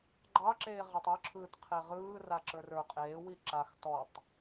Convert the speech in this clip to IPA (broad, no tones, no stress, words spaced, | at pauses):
ɡ͡ǃɑǁeː ʁatˤə˞ǁʰɯːt qʰeʁɯː raǁə˞rə˞ qʼeːwi ǁax tɔtˤ